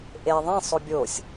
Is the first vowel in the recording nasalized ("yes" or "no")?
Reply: no